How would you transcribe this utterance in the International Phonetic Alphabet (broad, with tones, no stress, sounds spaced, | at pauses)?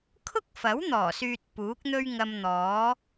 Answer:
kʰ ʊ˥ k̚ f ɐ˨˥ w n̪ ɔː˨˩ s yː˨ t̚ p uː˨˥ k̚ n̪ ɵ˥ ɥ ŋ ɐ˧ m n̪ ɔː˨˥